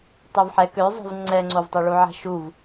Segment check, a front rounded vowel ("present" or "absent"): present